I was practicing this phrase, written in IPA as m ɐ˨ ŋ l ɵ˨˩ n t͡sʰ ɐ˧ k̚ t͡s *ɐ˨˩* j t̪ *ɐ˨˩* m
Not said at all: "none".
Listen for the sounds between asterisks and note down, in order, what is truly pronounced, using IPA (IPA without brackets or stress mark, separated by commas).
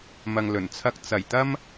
ɐ˨˩, ɐ˧